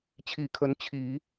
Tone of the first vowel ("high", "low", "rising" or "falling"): low